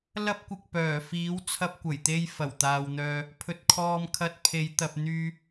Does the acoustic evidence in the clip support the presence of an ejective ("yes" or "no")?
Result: no